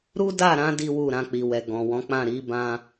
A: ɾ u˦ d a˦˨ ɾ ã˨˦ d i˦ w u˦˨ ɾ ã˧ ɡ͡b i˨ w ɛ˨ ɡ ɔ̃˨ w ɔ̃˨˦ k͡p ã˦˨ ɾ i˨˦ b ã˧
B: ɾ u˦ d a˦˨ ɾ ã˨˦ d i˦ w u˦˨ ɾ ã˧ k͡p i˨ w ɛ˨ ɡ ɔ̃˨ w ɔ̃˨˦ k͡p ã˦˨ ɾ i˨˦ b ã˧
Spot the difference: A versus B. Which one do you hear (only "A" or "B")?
B